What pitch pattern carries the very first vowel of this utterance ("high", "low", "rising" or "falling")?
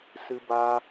high